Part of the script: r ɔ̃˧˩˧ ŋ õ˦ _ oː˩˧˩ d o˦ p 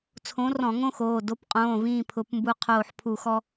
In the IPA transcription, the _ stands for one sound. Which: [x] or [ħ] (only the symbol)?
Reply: x